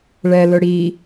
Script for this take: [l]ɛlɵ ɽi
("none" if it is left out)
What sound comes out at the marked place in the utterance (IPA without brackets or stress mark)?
ɭ